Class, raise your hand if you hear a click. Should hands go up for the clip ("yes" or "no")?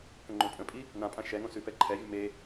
yes